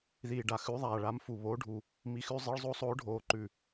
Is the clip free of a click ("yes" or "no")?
no